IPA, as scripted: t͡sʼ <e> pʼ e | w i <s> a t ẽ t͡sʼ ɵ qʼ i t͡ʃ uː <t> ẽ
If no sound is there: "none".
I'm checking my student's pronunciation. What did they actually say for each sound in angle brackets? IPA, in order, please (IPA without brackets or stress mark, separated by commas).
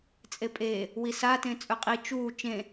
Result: e, s, t͡ʃ